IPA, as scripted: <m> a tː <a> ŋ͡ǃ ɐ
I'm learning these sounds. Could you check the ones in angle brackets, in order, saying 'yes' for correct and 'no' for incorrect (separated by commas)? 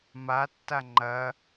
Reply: yes, yes